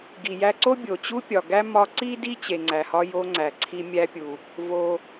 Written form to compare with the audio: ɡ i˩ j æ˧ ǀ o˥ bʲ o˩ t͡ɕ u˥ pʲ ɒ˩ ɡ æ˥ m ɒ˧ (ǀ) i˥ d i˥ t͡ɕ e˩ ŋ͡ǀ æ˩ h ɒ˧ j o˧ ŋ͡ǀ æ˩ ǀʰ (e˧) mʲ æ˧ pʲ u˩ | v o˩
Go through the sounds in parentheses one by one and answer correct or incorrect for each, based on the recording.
correct, incorrect: i˧

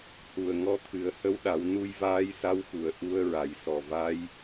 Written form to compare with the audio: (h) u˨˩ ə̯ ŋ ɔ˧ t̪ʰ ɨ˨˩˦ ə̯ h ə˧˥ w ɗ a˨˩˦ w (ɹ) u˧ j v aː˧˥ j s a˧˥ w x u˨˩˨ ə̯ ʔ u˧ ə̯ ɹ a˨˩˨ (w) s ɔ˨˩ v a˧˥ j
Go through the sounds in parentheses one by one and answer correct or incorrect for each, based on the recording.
correct, incorrect: n, incorrect: j

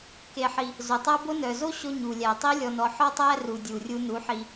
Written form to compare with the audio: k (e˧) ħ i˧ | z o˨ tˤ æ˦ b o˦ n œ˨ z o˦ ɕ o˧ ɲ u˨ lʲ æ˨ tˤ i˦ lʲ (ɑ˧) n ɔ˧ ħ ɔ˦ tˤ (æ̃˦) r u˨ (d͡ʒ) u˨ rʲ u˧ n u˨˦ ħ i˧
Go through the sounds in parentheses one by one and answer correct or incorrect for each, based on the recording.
correct, incorrect: ɔ˧, incorrect: æ˦, incorrect: dʲ

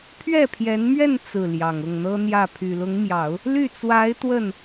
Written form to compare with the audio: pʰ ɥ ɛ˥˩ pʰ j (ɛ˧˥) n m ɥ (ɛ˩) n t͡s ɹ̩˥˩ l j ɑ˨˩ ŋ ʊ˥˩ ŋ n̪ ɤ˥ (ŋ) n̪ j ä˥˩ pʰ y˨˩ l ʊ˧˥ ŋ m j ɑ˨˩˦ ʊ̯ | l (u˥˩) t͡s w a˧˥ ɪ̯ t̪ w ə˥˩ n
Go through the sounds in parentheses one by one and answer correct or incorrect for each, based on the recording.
correct, incorrect: ɛ˥˧, incorrect: none, incorrect: y˥˩

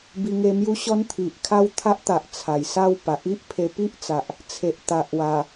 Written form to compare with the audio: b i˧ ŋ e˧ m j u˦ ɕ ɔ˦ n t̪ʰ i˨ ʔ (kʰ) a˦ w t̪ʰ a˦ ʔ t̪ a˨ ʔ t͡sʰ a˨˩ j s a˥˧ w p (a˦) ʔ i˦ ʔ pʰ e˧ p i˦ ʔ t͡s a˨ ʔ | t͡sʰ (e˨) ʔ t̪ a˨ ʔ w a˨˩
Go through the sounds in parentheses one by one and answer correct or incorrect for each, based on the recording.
correct, incorrect: a˨, correct

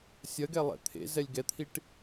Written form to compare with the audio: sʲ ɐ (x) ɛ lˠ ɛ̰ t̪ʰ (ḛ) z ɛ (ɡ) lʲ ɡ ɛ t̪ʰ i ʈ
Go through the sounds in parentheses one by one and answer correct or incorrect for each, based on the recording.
incorrect: ɡ, correct, incorrect: none

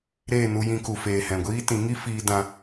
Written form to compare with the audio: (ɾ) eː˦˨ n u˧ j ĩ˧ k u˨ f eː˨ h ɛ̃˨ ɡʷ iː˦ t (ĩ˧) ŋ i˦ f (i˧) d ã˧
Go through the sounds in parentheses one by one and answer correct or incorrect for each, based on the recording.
correct, incorrect: ĩ˨˦, incorrect: iː˧

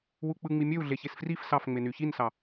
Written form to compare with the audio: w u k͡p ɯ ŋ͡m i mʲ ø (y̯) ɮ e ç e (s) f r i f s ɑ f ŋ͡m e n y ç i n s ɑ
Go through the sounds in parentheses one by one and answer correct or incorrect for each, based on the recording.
incorrect: u̯, correct

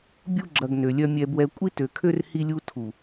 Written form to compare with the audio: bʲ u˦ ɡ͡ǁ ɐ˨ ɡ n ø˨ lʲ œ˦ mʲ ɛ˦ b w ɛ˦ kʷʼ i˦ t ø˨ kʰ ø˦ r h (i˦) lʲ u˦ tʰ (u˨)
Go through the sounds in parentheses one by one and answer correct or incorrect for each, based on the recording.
correct, correct

